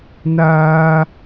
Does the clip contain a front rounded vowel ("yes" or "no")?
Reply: no